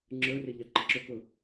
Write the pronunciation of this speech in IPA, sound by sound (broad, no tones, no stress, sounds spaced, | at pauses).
ŋ͡ǁ ə˞ r ɪ ʎ ɑ ǃ ə ǁ ʊ k ʊ